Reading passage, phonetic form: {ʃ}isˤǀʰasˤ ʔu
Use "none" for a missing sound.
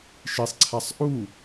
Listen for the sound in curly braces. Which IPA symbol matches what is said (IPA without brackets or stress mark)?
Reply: ʃ